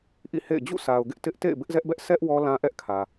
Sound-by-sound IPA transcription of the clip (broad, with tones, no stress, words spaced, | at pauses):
ʔḭ˦˨hḛ˦˨ɪ̯ d͡ʑṵ˦˨sʰa˨ʊ̯ɡɪ˦ʔ tɪ˦ʔ tḛ˦˨ɪ̯bɪ˦ʔzɛ˦ʔbɛ˦ʔ sʰɛ˦ʔ wɔ˦lã˦ʔɛ˦ʔkʰä˨